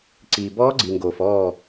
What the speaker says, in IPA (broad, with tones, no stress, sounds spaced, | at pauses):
ǀ iː˨ b ɔː˦˥ ɡ͡ǀ i˨ ŋ ɡ oː˨ f ɔː˥˨